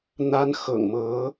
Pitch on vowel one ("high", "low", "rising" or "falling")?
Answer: high